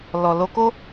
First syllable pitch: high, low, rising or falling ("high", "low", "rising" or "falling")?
low